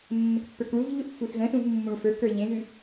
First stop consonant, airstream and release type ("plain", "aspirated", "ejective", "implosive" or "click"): plain